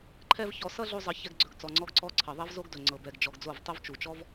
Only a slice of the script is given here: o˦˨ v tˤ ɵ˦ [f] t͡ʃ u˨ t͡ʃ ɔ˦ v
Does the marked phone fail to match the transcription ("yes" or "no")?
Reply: yes